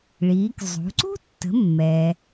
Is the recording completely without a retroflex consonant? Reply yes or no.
no